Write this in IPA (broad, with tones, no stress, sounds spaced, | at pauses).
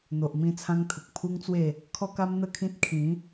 n̪ o˨ ʔ m ĩ˧ t͡sʰ ã˧ ŋ t̪ʰ ə˨ k̚ pʰ u˦ ŋ t͡s w e˥˧ | kʰ ɔ˧ k a˧ m n̪ ə˥˧ kʰ ĩ˦ t̚ kʰ ĩ˨˦